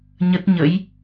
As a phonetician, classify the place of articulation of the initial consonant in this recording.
palatal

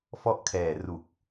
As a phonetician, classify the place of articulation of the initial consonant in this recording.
labial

